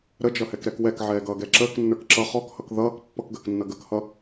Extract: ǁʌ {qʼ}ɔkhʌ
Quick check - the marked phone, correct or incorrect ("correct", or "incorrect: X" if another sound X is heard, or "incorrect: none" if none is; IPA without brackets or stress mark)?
incorrect: χ